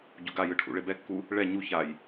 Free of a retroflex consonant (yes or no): no